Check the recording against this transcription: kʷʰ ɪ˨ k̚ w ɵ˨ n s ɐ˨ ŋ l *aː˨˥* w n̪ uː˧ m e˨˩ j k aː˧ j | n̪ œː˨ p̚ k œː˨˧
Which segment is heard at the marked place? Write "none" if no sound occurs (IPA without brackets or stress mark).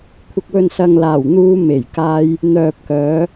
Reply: aː˨˩